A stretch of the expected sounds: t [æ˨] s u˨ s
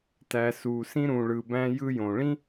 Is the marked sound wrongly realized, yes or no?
no